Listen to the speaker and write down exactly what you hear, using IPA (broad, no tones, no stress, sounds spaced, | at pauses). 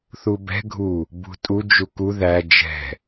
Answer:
θ u b ɛ̤ ɡʱ u | b ṳ tʼ u d͡ʒ u k u ð æ d͡ʒ ɛ̤